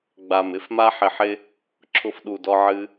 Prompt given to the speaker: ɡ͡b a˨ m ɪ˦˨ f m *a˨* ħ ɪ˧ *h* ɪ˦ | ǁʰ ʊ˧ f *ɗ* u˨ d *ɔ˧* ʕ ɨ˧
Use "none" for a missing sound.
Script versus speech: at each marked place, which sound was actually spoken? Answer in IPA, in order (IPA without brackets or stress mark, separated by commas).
a˦, ħ, ɗ, ɔ˧